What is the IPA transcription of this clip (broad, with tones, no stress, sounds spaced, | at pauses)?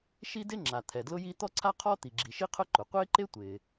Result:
ʃ i˥ d ɪ˥ ŋ͡ǁ a˩ t̪ʰ ɛ˩ d l ʊ˥ j i˥ t̪ ɔ˥ ǀʰ a˥ qʰ ɔ˥ t̪ i˩ ɡ͡ǁ i˩ ʃ i˥ qʰ ʊ˥ ǃ ʊ˩ qʷ ɪː˥ ǃ e˥ tʷ ɪː˩